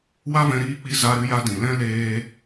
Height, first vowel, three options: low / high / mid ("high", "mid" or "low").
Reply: low